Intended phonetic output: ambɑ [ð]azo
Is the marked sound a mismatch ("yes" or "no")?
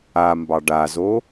yes